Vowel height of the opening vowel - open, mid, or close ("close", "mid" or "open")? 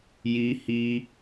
close